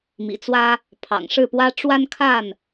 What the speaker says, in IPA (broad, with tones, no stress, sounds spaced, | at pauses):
m ḭ˨˩ t͡s w ä˦ | pʰ ɑ̰˨˩ ŋ ʂ ɻ̩˥˨ p w ä˦ ʈ͡ʂ w a˦ n kʰ a˥˨ n